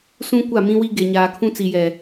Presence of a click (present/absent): absent